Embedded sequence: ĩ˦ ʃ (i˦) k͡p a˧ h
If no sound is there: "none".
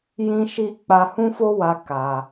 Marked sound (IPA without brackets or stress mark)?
i˦